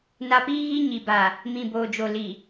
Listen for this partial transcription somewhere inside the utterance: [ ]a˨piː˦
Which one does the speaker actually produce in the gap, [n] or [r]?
n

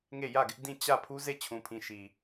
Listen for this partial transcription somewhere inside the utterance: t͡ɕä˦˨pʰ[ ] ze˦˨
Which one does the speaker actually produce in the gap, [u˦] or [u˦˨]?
u˦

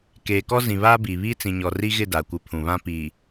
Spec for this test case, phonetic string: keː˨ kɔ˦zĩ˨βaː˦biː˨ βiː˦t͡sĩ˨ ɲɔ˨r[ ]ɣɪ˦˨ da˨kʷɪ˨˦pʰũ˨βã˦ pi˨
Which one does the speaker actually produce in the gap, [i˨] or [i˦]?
i˦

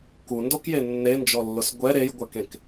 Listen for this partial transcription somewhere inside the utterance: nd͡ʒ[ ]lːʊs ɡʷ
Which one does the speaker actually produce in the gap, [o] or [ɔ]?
ɔ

